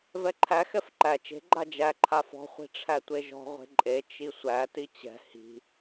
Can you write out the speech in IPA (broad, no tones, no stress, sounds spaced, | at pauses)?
v ɛ ǃʰ æ x ɛ f ǃ æ t͡ʃ e̤ ɡ͡ǃ a d͡ʒ æ ǃʰ a f ɔ̤ χʷ i̤ ʈ͡ʂʰ æ tʷ e ʒ ɔ̤ ʁʷ e̤ ǃʼ e t͡ʃ i sʷ æ t i t͡ɕ ɛ̤ h i̤